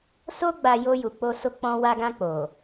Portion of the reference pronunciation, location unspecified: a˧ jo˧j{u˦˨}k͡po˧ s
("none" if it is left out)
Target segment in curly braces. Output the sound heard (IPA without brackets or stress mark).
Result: u˨